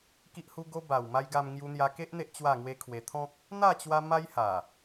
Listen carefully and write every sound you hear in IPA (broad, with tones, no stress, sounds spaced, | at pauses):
k i˦ ʔ h u˦ ɡ o˦ b a˨˩ w m a˧ j ɡ a˧ m ŋ j u˧ n̪ j a˧ k e˦ ʔ n̪ e˦ ʔ t͡ɕ w a˥˧ ŋ w e˦ kʰ w e˧ t̪ʰ ɔ̃˦ k̚ | n̪ a˥˧ t͡ɕ w a˧ m a˦ j h a˨˩